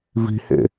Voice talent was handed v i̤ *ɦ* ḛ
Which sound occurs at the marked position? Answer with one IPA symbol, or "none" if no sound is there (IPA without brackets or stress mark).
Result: h